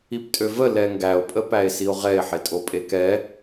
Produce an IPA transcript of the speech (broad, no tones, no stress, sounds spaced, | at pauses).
i p tʼ ø v ə l ɛ ŋ ɡ æ o̯ pʼ ə p æ e̯ s i o̯ ʁ ɛ e̯ ħ e tʼ o pʼ e k ɛ